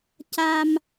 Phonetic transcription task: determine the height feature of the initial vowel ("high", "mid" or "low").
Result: low